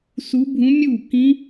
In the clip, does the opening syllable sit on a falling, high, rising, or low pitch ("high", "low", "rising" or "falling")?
rising